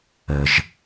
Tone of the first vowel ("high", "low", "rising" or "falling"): low